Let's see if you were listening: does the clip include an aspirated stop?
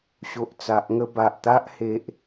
no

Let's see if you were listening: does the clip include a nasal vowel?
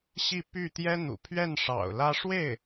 no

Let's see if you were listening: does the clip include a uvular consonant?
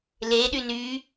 no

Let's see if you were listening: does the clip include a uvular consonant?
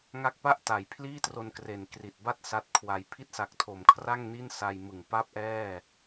no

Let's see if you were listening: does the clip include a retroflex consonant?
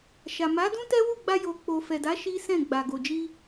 no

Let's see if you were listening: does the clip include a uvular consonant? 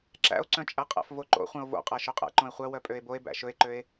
yes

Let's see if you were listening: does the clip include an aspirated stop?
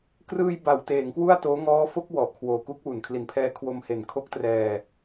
yes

